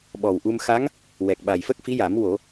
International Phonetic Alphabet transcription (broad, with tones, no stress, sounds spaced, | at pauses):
ɓ ɔ˨˩ w ʔ u˧ m x a˧˥ ŋ | w ɛ˨˩ k̚ ɓ a˨˩ j f ə˦˥ k̚ f i˧˥ j a˨˩˦ m w o˨˩˦